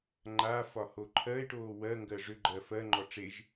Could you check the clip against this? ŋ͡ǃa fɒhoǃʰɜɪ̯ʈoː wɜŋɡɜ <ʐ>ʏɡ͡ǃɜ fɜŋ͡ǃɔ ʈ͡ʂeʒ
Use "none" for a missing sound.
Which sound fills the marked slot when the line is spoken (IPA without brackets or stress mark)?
ʐ